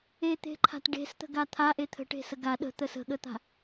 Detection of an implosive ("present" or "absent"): present